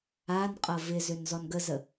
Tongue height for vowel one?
low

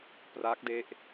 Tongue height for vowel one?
low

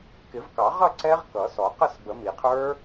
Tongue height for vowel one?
high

